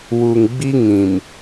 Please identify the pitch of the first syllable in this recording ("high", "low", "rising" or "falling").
low